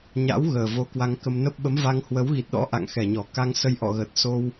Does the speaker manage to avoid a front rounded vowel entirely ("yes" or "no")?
yes